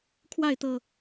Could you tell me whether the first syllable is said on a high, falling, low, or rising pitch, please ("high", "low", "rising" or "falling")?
falling